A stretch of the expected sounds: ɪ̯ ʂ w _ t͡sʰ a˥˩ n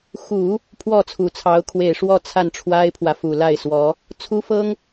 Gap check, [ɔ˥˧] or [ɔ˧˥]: ɔ˥˧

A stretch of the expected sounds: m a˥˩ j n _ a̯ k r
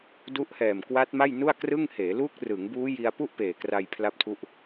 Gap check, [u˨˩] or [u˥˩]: u˥˩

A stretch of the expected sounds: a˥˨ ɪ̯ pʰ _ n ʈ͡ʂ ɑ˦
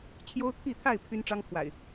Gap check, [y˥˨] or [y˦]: y˦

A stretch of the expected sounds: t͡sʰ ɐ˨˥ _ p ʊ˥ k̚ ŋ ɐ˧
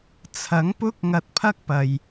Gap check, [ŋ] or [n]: ŋ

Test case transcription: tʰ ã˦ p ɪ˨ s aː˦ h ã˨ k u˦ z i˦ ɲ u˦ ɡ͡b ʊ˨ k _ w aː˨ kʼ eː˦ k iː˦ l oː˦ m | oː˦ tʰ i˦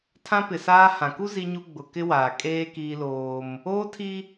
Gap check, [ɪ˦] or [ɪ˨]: ɪ˦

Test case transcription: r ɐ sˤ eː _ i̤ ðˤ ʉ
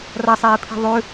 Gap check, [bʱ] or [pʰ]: pʰ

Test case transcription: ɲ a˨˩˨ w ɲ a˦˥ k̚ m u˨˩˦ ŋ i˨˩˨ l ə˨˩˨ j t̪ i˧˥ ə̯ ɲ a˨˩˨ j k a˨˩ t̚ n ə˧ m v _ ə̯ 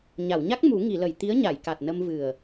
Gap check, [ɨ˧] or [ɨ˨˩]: ɨ˨˩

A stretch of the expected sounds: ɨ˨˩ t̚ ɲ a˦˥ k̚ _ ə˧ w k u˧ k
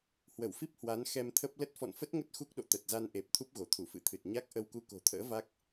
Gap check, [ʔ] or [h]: ʔ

